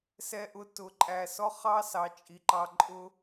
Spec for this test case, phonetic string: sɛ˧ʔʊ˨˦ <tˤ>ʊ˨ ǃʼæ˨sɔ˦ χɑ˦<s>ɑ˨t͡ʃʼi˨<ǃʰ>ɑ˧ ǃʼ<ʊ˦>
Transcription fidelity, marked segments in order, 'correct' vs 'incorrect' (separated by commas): incorrect, correct, incorrect, correct